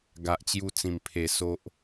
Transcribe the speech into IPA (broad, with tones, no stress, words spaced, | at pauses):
ɡa˨ʔt͡ɕju˧t͡sĩ˨˩m pʰe˨˩ so˦ʔ